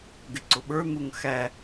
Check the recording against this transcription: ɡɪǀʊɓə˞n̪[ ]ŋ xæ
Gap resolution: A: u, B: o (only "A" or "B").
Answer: A